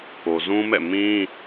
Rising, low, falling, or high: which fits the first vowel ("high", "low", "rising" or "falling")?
low